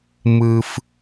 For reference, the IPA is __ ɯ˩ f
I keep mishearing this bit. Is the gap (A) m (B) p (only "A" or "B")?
A